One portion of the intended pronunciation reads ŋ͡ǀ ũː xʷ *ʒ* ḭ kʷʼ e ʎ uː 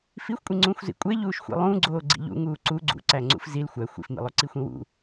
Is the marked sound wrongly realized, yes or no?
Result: yes